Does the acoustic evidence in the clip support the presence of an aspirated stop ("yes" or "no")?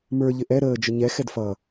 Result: no